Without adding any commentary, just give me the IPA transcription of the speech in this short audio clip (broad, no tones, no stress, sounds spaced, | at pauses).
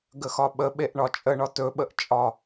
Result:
ɡ ə x ɒ ɓ ə ɓ e ʔ ɳ ɒ t͡ʃʼ ə ɳ ɒ t ɵ ɓ ə ʔ t͡ʃʼ ɒ